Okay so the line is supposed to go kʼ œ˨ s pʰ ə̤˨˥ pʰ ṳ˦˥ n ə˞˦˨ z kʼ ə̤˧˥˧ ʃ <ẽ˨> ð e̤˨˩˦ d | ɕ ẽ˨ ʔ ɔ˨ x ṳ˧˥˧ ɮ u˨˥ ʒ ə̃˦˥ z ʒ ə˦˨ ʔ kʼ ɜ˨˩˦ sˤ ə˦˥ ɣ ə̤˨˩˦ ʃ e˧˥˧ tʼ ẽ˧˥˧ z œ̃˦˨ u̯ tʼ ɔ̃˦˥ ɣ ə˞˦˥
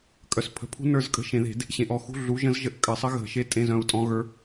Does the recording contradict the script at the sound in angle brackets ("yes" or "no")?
yes